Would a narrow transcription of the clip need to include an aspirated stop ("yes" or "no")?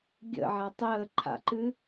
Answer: yes